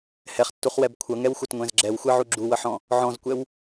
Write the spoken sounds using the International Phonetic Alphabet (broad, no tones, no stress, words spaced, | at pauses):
hɛχtːuχwɛb kʷʰʌŋɛwxʷʌtŋʷɛ̃z ɡ͡ǁɛwxʷɛʕu ɡ͡ǁuwʌħɔ̃ | ʕɔ̃zkʷɛw